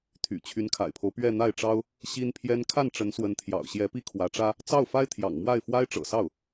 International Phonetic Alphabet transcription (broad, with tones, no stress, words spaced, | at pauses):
t̪ʰy̰˨˩t͡ɕʰy˧˥nkʰa̰˨˩ɪ̯pʰo˦ʊ̯ pɥɛ˥˧n̪a˥˩ɪ̯ʈ͡ʂɑ˥ʊ̯ | ɕi˥npʰjɛ˥n kʰa˥˩nʈ͡ʂə˧˥nswə˧˥nt̪ʰjɑ̰˨˩ʊ̯ ɕjɛ˧˥ pi˥kʰwä˧˥ʈ͡ʂä˥ | t͡sɑ˥˩ʊ̯fa˥ɪ̯t̪ʰjɑ̰˨˩ŋmwa˥˩ɪ̯ fwa˥ɪ̯ʈ͡ʂɤ̰˨˩sɑ˥˩ʊ̯